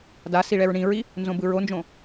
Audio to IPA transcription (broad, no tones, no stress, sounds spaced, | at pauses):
d a s i ɭ ɛ ɹ ɳ ĩ ɹ i | n z õ b ɯ ɹ o n d͡ʒ õ